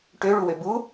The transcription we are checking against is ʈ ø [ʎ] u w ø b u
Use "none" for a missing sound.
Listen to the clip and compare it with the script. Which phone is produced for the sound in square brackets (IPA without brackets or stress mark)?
ɭ